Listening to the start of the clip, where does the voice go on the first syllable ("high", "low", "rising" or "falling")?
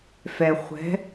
low